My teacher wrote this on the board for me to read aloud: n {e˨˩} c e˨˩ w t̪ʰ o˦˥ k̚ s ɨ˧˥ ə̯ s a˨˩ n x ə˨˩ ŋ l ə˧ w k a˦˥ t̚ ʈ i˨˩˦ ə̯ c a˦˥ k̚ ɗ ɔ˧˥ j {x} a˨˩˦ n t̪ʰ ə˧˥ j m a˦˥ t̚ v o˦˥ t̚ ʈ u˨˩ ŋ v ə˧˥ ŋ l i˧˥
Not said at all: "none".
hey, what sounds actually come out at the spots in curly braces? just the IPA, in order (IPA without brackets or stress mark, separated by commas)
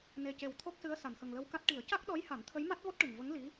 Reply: e˨˩, h